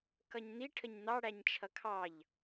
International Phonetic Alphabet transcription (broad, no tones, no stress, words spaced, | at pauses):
kʌɲn̪i ʈʰəɲn̪ɑ ɽæɲt͡ʃʰʌkʰɑʎ